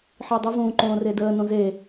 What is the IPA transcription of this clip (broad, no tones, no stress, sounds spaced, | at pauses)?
ħ i dˤ ə v ũː ǃ õː r e d əː n õ z e